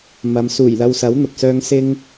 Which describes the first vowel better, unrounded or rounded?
unrounded